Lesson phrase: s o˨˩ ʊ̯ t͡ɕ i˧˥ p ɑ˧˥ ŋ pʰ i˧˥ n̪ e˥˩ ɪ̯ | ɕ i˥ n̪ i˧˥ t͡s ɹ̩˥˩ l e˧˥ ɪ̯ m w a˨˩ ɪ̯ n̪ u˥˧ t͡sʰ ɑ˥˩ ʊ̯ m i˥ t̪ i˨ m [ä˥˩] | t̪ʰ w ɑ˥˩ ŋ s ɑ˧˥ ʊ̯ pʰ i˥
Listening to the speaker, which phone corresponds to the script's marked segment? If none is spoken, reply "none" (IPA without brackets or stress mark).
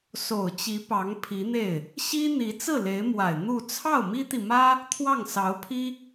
ä˥